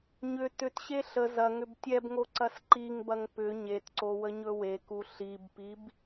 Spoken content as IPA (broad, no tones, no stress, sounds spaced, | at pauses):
ɲ ʏ t ʏ t ɕ e ɬ ə z ɐ ŋ ʏ b tʲ ɛ b ŋ o ǀ ɐ s ǃ i ŋ b ɐ ŋ p ʏ ɲ e t ǀ o w ə ɲ ɵ w e k u ɬ i b p i b